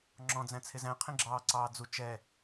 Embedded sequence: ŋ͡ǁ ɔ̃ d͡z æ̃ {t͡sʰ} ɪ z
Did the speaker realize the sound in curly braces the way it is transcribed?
yes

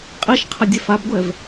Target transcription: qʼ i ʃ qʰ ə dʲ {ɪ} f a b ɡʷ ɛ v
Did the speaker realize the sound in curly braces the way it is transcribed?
no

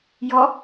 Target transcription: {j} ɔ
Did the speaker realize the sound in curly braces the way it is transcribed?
yes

